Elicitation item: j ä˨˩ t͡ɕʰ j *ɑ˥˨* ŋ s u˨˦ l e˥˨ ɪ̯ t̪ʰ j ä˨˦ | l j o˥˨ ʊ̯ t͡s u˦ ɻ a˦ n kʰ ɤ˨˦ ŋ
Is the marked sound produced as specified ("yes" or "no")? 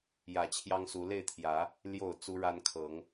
no